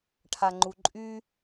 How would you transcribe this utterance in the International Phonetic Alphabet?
ʈʰaŋ͡ǃuǃʼy

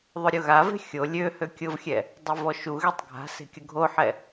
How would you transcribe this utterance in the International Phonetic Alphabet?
ðˤʊɾʲʊɣave̤ xʲo lʲø høkʲʊvxʲɛ | dˤɛvɔʃuɣetˤ ɡʱa̤ se̤kʲʊɡʱoħɛ

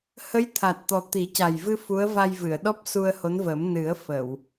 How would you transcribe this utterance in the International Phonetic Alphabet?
hə˧˥jt̪ʰa˨˩t̚t̪ɔ˨˩ t̪i˨˩˦ca˨˩jvɨ˧ fu˧˥ə̯ va˧jvɨ˨˩˨ə̯ ɗɔ˦˥p̚su˧ə̯ho˧˥nvə˨˩˦m nɨ˨˩˦ə̯fə˨˩˨w

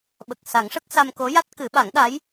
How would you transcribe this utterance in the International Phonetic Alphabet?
ɓə˨˩k̚sa˨˩˦ŋʂə˦˥k̚ sa˧mko˧˥ja˦˥t̚ kɨ˨˩˦ɓa˨˩˦ŋɗa˧˥j

